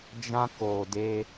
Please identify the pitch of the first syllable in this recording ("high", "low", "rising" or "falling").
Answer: high